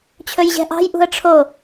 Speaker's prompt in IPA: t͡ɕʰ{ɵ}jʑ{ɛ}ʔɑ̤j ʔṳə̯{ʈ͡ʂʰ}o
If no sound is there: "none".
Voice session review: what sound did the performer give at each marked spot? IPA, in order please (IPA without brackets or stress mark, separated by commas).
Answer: ɵ, ɛ̤, ʈ͡ʂʰ